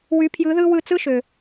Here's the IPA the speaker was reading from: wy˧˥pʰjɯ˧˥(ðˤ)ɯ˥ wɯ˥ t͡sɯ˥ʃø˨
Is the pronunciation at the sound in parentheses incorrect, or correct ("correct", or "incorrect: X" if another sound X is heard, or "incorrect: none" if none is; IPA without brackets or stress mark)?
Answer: incorrect: ð